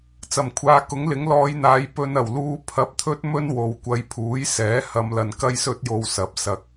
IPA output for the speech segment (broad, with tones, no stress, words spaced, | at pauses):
t͡sɐ˨˩mkʷʰaː˨˧kʊ˨˥ŋlɪ˨˥ŋ lɔː˨˧jn̪aː˨˧j pɵ˧n ɐ˨˩wluː˧ pʰɐ˧p̚t̪ʰɵ˥t̚mɵ˥n wo˨w kʷɐ˨˧jpʰuː˨˥j sɛː˨˥ hɐ˨˧mlɐ˨n kɐ˥jsɵ˥t̚jo˧w sɐ˨˥p̚ sɐ˨k̚